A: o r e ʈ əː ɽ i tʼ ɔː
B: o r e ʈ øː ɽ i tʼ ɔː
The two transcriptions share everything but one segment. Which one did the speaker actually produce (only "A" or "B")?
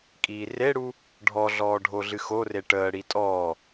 A